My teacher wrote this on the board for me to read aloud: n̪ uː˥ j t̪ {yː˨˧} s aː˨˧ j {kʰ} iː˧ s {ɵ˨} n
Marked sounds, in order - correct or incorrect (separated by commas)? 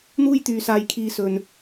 incorrect, correct, correct